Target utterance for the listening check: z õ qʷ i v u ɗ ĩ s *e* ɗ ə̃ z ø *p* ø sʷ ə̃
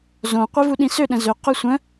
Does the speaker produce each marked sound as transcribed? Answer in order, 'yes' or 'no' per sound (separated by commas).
no, no